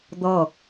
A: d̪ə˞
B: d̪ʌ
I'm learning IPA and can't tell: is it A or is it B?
B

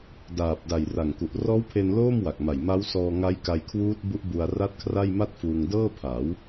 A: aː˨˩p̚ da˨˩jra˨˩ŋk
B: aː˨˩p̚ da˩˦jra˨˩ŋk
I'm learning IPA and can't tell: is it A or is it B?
A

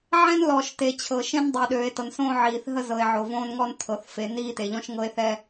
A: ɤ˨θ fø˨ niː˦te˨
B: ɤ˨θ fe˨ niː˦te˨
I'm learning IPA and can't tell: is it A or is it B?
B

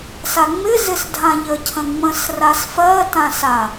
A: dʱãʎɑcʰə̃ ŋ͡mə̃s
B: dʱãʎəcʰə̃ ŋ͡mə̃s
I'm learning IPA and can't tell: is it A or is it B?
B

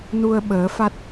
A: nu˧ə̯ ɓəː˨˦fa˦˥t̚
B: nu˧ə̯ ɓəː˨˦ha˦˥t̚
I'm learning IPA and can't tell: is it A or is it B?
A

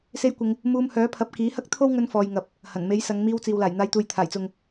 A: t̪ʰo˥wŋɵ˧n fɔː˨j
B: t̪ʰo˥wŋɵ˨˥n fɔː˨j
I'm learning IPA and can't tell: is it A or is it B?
A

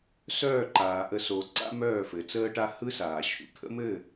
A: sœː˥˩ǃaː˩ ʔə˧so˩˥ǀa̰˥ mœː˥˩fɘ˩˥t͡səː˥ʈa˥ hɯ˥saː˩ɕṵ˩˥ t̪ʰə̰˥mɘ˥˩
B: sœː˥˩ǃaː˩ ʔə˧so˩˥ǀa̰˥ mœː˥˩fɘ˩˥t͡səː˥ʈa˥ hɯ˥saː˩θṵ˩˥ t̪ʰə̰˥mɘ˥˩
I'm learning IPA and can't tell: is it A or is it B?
A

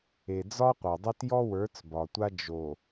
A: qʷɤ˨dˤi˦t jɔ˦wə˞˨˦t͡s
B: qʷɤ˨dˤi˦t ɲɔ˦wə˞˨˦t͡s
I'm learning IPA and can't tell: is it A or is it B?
A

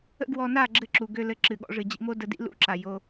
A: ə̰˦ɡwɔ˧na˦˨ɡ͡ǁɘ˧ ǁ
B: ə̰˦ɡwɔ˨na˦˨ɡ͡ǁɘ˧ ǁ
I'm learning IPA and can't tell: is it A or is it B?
A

